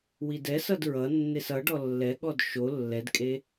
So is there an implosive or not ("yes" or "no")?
yes